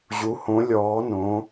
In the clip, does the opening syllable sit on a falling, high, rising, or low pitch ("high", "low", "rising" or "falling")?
rising